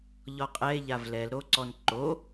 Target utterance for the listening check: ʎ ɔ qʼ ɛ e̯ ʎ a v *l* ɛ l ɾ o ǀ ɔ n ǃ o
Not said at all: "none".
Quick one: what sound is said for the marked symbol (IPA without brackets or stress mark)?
l